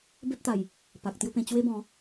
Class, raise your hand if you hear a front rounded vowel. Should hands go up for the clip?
no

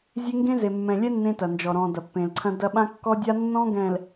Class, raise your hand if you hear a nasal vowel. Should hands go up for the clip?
yes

